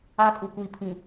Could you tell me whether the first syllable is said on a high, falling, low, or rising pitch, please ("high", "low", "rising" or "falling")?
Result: high